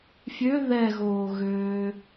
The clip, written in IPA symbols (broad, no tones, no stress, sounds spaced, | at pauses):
fʲ ø ð ɛ ɣ oː ɣ øː